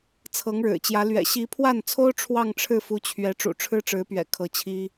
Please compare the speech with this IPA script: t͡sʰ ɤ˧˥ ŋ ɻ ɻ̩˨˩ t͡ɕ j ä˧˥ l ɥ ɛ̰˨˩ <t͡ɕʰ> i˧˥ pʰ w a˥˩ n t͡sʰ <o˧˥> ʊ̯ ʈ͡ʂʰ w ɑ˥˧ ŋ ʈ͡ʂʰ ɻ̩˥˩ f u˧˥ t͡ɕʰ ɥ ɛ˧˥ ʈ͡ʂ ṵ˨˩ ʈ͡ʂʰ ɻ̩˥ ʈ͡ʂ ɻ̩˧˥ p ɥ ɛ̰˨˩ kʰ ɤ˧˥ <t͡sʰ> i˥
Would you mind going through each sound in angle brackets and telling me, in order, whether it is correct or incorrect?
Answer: incorrect: ɕ, incorrect: o˥, incorrect: t͡ɕʰ

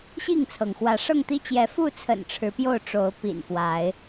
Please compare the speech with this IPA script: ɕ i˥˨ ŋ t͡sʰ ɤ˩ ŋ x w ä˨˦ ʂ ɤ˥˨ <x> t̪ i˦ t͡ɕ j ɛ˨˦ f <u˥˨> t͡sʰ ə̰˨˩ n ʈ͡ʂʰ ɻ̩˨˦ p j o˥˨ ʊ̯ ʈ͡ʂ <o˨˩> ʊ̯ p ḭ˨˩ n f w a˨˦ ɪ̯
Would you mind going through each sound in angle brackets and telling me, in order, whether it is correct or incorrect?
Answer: incorrect: ŋ, correct, incorrect: o˨˦

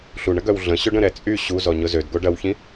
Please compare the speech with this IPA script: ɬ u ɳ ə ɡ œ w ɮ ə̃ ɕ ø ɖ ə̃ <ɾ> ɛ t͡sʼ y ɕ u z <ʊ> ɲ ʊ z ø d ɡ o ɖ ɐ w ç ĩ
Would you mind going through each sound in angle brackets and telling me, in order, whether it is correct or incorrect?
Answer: correct, incorrect: ɔ

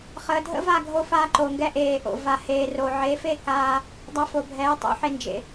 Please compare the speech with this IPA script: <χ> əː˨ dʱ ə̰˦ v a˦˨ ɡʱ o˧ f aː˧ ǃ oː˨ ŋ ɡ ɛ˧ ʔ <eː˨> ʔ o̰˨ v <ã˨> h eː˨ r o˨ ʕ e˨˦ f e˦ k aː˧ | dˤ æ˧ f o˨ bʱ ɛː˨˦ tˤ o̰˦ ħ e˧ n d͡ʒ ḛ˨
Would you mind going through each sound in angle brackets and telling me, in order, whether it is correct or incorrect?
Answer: correct, correct, incorrect: a˨

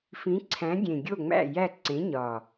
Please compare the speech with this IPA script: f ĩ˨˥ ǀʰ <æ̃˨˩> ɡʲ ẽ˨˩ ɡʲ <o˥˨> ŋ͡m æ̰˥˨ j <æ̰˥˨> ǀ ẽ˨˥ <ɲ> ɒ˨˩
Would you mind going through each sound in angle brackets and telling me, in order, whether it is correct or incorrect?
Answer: incorrect: æ̃˨˥, correct, incorrect: æ˥˨, correct

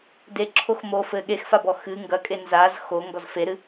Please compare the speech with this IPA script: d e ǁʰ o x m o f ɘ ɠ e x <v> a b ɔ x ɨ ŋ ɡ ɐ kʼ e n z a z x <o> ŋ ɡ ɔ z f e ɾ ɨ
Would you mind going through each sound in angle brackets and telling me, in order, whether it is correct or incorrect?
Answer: incorrect: f, correct

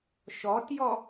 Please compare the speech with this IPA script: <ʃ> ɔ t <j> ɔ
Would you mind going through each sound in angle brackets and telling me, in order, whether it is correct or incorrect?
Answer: correct, correct

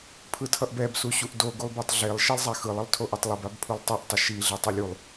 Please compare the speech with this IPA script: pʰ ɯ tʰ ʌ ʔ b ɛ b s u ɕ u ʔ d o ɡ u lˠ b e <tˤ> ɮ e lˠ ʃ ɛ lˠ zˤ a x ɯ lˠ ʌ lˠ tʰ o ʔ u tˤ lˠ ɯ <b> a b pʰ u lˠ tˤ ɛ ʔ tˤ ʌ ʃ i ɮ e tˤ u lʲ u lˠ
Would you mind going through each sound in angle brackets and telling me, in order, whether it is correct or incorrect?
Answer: correct, correct

